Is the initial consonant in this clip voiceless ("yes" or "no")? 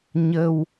no